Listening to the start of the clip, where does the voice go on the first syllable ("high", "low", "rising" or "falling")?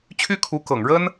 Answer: high